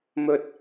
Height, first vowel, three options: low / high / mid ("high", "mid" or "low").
mid